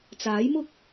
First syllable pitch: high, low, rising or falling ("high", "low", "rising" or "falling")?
rising